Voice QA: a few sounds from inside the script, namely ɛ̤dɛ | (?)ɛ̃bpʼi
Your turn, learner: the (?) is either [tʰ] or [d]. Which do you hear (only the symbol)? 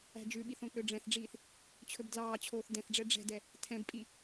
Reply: tʰ